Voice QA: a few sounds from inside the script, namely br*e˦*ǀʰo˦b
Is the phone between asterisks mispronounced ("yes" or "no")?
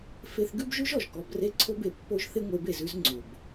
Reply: no